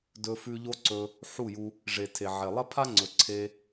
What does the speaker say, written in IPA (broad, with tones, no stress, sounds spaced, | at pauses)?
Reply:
d ɵ˧ f ʉ˧ ʎ o˦ ǀ ɵ˧ | ħ u˦˨ j u˧ | ʐ e˨ tʰ e˨ ʕ e˨ lˠ ɐ˦ pʰ a˦ ŋ͡ǀ ɵ˨ ǀʰ e˧